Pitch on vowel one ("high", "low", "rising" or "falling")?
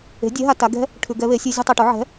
rising